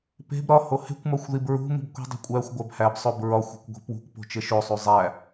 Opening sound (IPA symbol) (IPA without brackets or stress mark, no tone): p